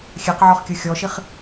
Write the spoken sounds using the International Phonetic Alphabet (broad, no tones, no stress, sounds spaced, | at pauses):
xʲ ɛ q ʕ ɔ χ kʲ ɯ xʲ ɔ ʃ i χ